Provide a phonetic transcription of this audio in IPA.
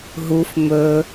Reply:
ɦuf mɵ

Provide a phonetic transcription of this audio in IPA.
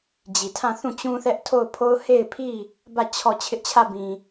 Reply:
d͡ʑi˨tʰã˦˨θũ˦˨ t͡ɕũ˦θɛ˦ʔtʰo˦˨ʊ̯pʰo˦ʊ̯ he˦˨ɪ̯pʰi˦˨ | bä˦˨ t͡ɕʰɔ˦˨ t͡ɕʰɪ˦ʔt͡ɕʰä˦˨bĩ˨

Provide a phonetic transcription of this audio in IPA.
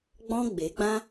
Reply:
ɡ͡bɔ̃˦ ɡ͡be˨˦ɡ͡bã˦

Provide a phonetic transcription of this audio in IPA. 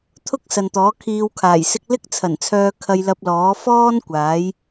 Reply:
t̪ʰʊ˥k̚ sɐ˨nt̪ɔː˨˥kʰiː˧wkʰaː˨˩j sɪ˥k̚ lɪ˥k̚t͡sʰɐ˨˩nt͡sʰœː˧ kʰɐ˧jlɐ˧p̚lɔː˨˥ fɔː˥n kʷaː˨˥j

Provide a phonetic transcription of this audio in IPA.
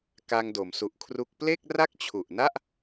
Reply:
ka˧ŋdo˩˦msu˨˩ʔkʰru˦˥k̚ ple˥˩k̚ra˥˩k̚ t͡ɕʰu˨˩ʔna˥˩ʔ

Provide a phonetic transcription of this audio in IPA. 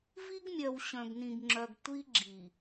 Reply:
vi˦ɡmʲœ˨w ɕœ̃˨ɡnĩ˨ɡŋ͡ǁœ˨ɡ tʷi˦ɡ͡ǁi˨

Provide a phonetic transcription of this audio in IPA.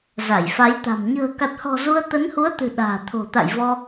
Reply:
za˧˩jfa˨˦jt̪a̤˨˩m ɲə̤ː˨˩ka˨˩t̚hɔ̤˨˩ zu˧ə̯t̪ə˨˦nhu˨˦ə̯t̪ɨ̤˨˩ ɗa̤ː˨˩t̪ʰo̤˨˩t̪a̰˧˨j vɔ˧

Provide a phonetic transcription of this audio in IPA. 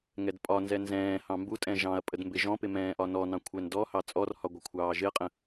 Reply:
ŋɛdpʼɒnzɛ nzɛ̃ːhɑ̃ mbutʼɛ̃ ʒɑ̃ɐ̯pʼəd mbɪʒɔ̃pɪ mɛ̃ːʔɒnɔnɑ̃ kʷʰɛndɔhɑ t͡sʼɔrhɒ ɡʷɪkʷʰɑːʒɪɐ̯qʼə̃

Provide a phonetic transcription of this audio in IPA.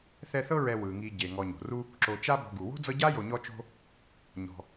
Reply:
θɛ˦θɤ˥ ɹɛ˨ wɯ˩ŋi˨ ɟe˩ ŋɔ˨ɲo̤˩ru˥ | ǁo˨ t͡ʃa˥ bɔ̤˨ɡu˩wo̤˥d͡zɤ˦ ɟa˥jo˨ɲɔ˦t͡ʃo̤˦ | ɲɔ̤˨

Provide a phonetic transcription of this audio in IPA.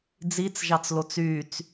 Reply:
d͡zit͡sʒɑt͡slot͡s yːt͡s

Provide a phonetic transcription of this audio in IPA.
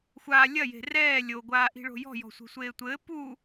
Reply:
xʷaː lʲɐje̤ rɛː lʲoɡʷaːʔi̤ ɭo̤jɔ̤jɔ̤ sʷe̤sʷeːtʷɘː pu

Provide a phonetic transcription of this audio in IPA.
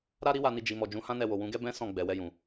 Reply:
ɾa˦ɾi˦wa˧ni˧ d͡ʒi˨mɔ˨ d͡ʒũ˨˦hã˦nɛ˧wo˨ wũ˨˦ɡɛ˦bɛ̃˦ sɔ̃˦˨ ɡ͡bɛ˨wɛ˧jũ˨

